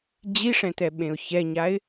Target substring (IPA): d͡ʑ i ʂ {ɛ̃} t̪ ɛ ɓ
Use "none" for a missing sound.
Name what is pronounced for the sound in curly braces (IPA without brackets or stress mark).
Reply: ɛ̃